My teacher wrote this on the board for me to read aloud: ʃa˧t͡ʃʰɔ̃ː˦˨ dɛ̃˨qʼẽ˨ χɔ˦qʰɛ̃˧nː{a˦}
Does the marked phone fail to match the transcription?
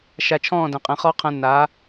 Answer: yes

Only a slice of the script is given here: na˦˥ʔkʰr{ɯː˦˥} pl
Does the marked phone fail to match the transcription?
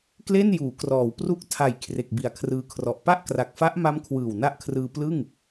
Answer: yes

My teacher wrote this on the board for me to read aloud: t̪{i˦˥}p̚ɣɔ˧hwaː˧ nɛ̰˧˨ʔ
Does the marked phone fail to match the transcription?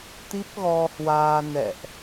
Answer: no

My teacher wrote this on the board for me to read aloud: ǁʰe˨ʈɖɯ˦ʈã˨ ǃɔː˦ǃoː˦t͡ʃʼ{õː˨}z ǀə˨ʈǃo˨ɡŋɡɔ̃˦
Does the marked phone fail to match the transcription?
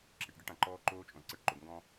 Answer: yes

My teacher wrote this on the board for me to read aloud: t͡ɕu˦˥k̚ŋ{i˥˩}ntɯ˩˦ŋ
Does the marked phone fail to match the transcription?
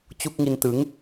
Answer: yes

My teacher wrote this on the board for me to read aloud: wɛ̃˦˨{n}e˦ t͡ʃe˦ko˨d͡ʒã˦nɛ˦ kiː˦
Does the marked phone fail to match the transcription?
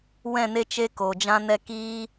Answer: no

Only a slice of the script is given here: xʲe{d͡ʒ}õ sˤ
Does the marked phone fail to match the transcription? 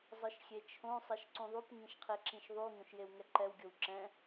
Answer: yes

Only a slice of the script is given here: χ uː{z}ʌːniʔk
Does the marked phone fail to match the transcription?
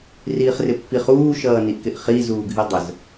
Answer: yes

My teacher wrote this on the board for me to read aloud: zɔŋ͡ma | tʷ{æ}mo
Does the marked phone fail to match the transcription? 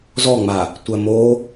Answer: yes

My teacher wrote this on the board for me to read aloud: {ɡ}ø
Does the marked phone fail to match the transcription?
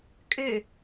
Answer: yes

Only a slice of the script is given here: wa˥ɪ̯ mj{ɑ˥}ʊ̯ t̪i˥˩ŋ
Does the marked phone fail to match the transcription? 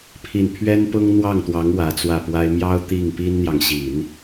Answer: no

